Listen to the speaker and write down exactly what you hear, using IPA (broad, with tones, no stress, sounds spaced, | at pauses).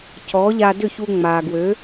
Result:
c ɔ˩˥ ʎ a˧ d ʏ˥˩ ç u˧ ŋ͡m a˩ ɡ w ø˩˥